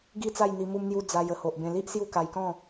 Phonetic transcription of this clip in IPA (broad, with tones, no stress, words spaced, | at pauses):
ɡi˦t͡sa˥˧j n̪i˧mu˦mn̪ju˦ d͡za˧jə˧ho˨ʔbẽ˧ li˦ʔ sju˥˧ka˧jkɔ̃˥˧